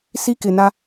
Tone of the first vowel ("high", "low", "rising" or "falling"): high